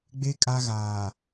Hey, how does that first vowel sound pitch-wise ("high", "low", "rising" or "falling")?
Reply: high